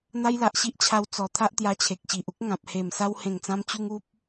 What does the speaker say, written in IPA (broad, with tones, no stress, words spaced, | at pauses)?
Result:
n̪a˦jla˨ʔɕi˦ʔt͡ɕʰa˧w t͡sɔ˨˩ t̪ʰa˦ʔt̪ja˧t͡ɕʰe˨k̚ ɕi˨ʔu˦k̚ŋã˨p̚ he˨˩m sa˧whẽ˨˩ŋt͡sã˧mt͡ɕu˧ŋ u˦p̚